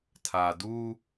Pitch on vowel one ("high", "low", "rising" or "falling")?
low